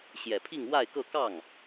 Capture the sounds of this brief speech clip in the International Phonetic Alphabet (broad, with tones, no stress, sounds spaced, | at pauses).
ɕ j ɛ˨˩ pʰ i˥˧ ŋ w a˥˧ ɪ̯ k ɤ˥˧ k ɑ˥˩ ŋ